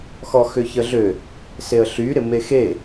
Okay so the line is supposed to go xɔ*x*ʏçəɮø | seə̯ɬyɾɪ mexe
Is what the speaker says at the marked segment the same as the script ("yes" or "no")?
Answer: yes